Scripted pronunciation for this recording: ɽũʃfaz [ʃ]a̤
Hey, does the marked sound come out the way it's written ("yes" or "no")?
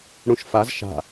yes